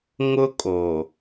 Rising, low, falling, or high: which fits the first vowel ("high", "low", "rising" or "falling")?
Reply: high